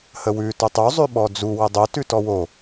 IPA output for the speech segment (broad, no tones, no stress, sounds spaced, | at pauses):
h ə w ʉ t o tˤ u zˤ ʉ ɓ ɔ d͡z u w ə dˤ o t ʉ t ɔ w o